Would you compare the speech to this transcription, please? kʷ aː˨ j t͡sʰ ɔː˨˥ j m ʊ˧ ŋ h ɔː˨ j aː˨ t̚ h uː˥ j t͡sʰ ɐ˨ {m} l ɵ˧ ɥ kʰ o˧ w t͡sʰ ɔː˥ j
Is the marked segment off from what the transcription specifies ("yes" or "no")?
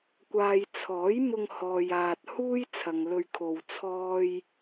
yes